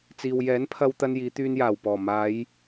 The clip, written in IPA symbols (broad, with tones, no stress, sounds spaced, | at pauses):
t͡s iː˨ w j ɛː˨˥ n pʰ ɐ˧ w t̪ ɐ˧ n j iː˨˧ t̪ yː˧ n j aː˨˩ w p ɔː˨˩ m aː˨˧ j